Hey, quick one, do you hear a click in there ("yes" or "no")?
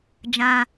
no